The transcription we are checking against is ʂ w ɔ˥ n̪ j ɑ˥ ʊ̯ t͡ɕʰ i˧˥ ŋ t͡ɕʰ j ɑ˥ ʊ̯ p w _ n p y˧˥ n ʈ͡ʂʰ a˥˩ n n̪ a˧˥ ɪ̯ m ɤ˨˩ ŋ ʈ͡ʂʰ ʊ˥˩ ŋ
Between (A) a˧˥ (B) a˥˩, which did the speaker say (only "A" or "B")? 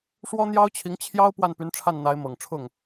B